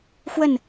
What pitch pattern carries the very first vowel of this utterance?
falling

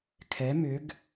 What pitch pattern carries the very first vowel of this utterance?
rising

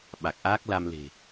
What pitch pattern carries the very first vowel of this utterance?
low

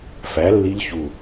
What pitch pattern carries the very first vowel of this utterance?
rising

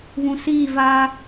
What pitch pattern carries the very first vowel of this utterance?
low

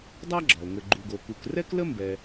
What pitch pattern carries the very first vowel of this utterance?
high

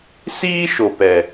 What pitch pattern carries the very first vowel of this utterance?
high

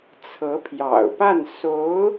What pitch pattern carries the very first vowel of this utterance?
rising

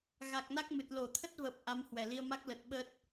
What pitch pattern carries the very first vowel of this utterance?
low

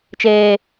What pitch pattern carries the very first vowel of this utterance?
high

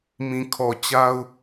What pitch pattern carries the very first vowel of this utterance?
low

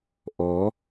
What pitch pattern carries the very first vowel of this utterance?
rising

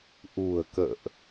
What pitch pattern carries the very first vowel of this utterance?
low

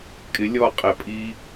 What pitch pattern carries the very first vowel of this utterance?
rising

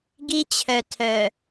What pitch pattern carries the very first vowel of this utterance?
high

